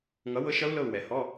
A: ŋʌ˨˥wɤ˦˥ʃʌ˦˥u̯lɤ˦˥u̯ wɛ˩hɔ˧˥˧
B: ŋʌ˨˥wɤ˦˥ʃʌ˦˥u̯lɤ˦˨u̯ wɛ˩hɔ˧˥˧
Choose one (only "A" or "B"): B